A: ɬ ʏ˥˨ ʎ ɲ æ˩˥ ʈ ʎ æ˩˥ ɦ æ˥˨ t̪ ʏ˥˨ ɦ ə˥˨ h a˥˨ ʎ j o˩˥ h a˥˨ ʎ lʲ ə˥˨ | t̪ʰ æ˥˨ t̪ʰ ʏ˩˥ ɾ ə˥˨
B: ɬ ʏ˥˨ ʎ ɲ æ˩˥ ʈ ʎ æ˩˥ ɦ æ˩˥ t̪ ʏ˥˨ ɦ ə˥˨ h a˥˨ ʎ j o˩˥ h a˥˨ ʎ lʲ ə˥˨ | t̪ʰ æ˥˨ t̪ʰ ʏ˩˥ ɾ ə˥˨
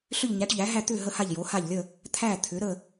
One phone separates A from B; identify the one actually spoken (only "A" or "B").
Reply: A